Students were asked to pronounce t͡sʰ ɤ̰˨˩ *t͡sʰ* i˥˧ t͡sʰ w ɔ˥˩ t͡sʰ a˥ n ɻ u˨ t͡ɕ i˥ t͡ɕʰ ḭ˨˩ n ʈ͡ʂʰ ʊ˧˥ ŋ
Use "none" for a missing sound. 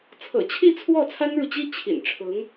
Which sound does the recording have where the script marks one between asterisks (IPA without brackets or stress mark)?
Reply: t͡ɕʰ